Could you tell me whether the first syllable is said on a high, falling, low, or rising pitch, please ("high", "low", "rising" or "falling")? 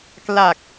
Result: low